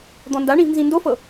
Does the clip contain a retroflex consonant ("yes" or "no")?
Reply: yes